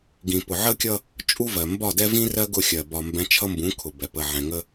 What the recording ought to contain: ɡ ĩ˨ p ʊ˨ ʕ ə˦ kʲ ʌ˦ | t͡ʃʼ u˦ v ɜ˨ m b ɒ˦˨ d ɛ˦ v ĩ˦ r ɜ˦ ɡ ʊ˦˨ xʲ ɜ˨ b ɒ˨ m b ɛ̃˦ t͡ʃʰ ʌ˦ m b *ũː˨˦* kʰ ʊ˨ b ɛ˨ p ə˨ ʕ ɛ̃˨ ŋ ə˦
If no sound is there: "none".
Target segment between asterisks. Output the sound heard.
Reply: ũ˨˦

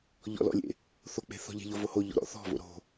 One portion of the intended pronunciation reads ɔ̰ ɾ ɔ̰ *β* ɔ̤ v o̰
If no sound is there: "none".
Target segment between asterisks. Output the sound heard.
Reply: θ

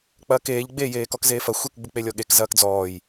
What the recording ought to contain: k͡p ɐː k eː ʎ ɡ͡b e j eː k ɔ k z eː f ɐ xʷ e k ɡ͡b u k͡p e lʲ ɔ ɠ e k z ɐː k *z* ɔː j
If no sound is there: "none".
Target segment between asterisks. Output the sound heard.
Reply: d͡z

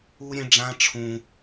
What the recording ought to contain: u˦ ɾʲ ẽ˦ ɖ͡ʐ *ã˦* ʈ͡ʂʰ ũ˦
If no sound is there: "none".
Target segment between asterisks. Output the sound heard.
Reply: ã˦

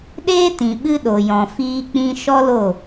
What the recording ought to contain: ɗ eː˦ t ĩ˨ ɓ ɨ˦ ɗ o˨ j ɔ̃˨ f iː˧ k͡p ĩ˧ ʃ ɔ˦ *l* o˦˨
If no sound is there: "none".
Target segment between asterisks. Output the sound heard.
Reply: l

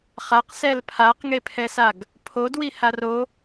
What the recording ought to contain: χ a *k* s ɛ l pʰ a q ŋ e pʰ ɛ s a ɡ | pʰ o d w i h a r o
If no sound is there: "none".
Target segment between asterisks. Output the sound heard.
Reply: q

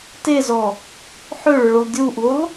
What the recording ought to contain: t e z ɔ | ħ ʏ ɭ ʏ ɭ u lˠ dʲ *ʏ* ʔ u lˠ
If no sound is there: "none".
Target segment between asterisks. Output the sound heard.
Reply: u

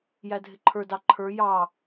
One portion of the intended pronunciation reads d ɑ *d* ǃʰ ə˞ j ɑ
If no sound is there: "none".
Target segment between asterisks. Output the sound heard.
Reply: none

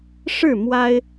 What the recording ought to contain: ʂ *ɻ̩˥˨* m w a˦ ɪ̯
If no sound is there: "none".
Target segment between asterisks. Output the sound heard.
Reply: ɻ̩˥˨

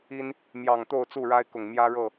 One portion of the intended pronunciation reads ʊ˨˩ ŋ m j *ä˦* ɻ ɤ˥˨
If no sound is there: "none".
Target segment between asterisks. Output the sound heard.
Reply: ä˦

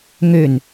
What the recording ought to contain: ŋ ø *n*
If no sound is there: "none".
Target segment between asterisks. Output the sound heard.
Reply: n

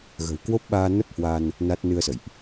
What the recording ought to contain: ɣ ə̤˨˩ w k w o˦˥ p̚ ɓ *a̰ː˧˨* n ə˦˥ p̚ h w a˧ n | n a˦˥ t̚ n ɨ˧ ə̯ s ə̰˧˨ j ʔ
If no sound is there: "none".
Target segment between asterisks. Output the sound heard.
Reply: aː˧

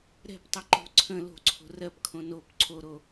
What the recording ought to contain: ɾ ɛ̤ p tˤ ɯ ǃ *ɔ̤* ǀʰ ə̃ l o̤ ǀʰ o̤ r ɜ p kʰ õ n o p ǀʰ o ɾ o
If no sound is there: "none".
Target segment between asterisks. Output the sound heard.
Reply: o̤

